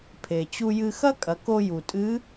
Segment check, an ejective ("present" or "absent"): present